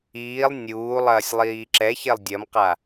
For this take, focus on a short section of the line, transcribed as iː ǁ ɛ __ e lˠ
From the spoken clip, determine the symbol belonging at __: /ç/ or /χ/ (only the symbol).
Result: ç